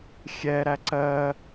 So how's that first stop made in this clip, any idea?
click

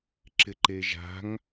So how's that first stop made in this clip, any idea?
click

